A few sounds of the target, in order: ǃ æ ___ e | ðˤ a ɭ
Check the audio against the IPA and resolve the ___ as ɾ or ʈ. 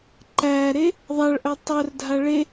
ɾ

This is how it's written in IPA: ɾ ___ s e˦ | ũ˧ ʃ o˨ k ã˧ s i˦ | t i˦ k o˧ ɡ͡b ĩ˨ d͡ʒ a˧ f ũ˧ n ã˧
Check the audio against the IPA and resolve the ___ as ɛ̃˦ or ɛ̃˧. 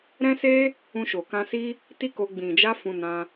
ɛ̃˦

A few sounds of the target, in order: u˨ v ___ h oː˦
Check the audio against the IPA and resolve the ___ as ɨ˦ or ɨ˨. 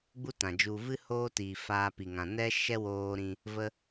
ɨ˦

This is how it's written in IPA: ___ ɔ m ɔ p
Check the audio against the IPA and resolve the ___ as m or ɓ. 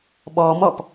ɓ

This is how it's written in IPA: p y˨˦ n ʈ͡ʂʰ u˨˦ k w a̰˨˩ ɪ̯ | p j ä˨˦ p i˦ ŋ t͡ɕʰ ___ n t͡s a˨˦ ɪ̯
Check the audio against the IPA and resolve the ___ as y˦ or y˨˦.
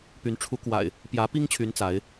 y˨˦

